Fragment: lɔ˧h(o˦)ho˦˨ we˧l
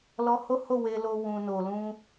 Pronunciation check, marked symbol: correct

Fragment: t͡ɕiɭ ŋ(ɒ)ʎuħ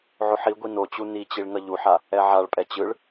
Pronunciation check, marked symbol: incorrect: ʌ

